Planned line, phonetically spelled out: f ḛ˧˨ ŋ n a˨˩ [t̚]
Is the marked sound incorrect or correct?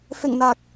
incorrect